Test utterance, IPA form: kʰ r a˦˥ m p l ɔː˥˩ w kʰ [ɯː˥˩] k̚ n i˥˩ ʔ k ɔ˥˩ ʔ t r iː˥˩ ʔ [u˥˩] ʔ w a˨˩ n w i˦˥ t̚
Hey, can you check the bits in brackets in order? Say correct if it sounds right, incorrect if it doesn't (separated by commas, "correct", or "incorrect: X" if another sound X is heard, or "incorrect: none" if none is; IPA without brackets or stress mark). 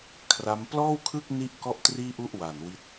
incorrect: ɯ˥˩, correct